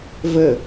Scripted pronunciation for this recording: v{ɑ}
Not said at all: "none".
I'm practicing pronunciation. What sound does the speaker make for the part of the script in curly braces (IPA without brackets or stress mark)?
ə